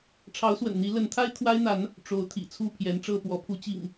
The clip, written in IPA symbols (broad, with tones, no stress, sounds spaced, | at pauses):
ʈ͡ʂʰ ɑ˨˦ ʊ̯ s w ə̰˨˩ n n̪ i˨˦ l ə˨˦ n t̪ʰ a˦ ɪ̯ t̪ʰ w a˦ ɪ̯ n̪ a˨˦ n | ʈ͡ʂ o˨˦ ʊ̯ t̪ʰ ḭ˨˩ t͡sʰ u˥˨ pʰ j ɛ˨˦ n ʈ͡ʂ ɤ˥˨ p w ɔ˨˦ pʰ u˨˦ t͡ɕ ḭ˨˩ ŋ